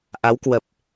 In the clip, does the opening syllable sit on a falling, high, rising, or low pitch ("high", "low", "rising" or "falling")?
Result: rising